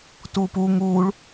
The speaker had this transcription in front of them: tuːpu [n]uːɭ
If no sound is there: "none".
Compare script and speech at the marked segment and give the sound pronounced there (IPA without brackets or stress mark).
ŋ